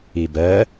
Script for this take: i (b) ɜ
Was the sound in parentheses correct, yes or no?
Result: yes